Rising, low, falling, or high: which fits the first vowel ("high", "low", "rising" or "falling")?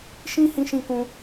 high